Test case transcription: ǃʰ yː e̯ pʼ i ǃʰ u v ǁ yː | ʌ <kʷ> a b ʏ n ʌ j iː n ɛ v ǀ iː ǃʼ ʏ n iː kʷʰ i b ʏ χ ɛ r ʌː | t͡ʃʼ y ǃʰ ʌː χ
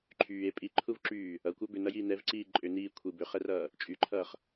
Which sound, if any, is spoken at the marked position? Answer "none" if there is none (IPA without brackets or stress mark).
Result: kʷ